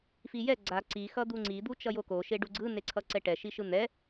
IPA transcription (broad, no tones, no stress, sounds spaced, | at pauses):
f i j ɛ ɡ͡ǀ a ǀ i x ʌ d̪ u ŋ͡ǀ i d̪ u t͡ʃ ʌ j o k o ʃ e ɖ u ɡ͡ǀ ɯ n e ǀʰ ʌ ǀ ɛ ʈ ɛ ʃ i ʃ ɯ n̪ ɛ